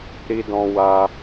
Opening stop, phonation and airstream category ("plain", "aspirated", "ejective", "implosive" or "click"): plain